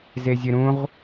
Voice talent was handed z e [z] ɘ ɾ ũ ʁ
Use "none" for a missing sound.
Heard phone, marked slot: zʲ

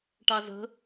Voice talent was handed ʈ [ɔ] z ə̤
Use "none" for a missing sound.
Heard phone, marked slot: ɑ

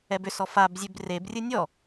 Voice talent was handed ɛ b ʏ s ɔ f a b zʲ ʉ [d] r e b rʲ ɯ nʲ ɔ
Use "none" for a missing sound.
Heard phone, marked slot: b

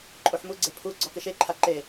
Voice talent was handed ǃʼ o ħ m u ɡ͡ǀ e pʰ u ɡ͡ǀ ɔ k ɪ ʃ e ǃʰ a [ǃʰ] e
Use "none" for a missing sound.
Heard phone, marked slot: ǃ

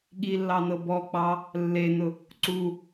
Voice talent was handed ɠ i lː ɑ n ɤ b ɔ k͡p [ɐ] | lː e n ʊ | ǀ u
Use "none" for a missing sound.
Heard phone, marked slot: ɑ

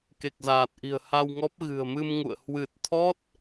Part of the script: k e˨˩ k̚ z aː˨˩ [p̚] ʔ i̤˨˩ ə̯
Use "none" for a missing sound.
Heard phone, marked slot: t̚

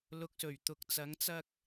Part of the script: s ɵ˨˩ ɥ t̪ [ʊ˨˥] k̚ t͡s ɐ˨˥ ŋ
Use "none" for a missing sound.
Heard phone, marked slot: ʊ˨˥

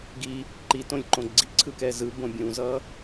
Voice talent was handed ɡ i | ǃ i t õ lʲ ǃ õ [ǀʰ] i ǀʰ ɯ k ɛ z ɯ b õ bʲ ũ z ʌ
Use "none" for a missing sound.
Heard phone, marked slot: ɡ͡ǀ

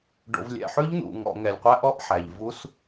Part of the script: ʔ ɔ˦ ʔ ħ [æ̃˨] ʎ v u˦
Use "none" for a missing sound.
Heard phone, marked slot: æ˨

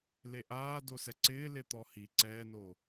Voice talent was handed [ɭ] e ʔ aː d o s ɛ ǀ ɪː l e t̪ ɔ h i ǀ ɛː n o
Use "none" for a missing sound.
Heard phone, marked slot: l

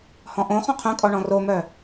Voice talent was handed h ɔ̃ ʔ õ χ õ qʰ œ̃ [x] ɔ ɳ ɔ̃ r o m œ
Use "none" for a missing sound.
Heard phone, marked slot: kʼ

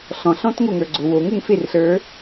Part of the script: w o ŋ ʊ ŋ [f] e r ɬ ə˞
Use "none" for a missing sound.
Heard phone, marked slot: f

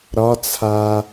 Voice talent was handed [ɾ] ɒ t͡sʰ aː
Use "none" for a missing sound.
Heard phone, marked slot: ɾ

